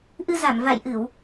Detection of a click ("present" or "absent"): absent